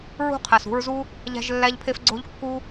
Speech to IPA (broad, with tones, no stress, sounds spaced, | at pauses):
ɹ ṳ˦ qʰ æ˨ s ṳ˧ ɹ z u˦ | ʎ æ̤˦ ʒ lː æ˦ ʎ pʰ e˦ f ɡ͡ǀ o̤˦ ʎ kː u˦